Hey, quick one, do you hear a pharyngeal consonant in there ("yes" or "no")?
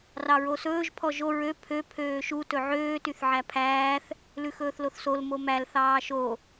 yes